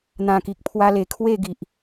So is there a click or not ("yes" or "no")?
no